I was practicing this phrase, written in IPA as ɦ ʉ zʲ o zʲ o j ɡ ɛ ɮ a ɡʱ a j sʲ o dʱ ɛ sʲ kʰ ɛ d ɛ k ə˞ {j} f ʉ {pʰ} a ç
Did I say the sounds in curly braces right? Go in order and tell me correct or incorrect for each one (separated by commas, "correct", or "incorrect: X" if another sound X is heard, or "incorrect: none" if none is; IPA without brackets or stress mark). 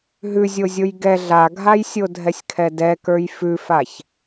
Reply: correct, incorrect: f